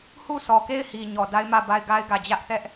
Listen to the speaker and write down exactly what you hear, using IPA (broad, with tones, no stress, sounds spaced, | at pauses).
h u˦˨ sʰ ɔ˨ k e˦˨ ɪ̯ h i˨ ɲ ɔ˨ d a˦ ɪ̯ m ä˦˨ b a˦˨ ɪ̯ ɡ a˦ ɪ̯ ɡ ä˨ d͡ʑ ä˦ ʔ θ ɛ˦ ʔ